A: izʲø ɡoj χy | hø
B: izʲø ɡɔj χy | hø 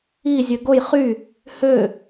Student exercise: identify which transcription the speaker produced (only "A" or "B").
A